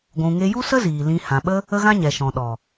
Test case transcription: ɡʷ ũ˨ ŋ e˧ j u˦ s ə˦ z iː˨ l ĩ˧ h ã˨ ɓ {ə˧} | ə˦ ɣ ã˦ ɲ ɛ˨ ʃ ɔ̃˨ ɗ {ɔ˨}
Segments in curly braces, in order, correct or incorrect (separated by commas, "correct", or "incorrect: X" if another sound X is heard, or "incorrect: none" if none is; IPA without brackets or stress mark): incorrect: ə˦, correct